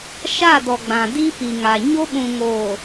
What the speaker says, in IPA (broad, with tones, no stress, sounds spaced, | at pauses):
ʃ a˦˨ d ɔ˨ ɡ͡b ã˨ d i˦ p i˨ ŋ a˨ ɲ o˦ ɓ ũ˨ ŋ oː˨